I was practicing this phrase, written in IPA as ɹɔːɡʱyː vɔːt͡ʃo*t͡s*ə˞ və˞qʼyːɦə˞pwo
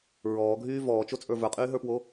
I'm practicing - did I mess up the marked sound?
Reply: yes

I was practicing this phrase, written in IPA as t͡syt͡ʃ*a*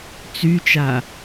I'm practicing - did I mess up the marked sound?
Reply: no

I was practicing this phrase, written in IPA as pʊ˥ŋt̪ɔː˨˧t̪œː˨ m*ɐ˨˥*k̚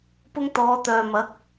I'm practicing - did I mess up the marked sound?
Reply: no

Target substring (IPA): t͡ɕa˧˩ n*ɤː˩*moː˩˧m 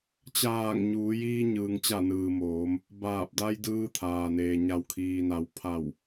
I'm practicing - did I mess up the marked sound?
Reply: yes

